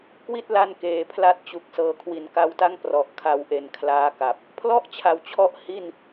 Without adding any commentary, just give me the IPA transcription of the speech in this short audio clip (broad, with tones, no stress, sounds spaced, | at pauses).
k w i˥˩ t̚ l a˧ n k eː˩˦ pʰ l a˥˩ t̚ t͡ɕ u˨˩ k̚ s ɤː˨˩ kʰ w i˩˦ n k a˧ w t a˥˩ ŋ p r ɔ˨˩ ʔ kʰ a˧ w ʔ e˨˩ n kʰ l aː˦˥ k a˨˩ p̚ | pʰ l ɔ˥˩ ʔ t͡ɕʰ a˩˦ w t͡ɕʰ ɔ˦˥ ʔ h i˥˩ n